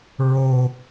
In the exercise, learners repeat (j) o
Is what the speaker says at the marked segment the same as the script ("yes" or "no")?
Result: no